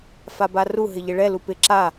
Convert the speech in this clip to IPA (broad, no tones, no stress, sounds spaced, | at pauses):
f a b a r u ɦ ɪ ʎ ɪ ɭ ɛ l u p ɪ ǁ a